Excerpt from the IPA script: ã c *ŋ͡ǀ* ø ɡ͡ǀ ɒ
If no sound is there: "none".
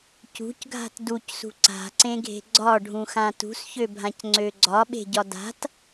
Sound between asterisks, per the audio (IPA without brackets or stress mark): ŋ͡ǀ